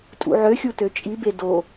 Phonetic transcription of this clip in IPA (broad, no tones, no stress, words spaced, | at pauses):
tʼṵʕøxʲu tøt͡ʃʼibe do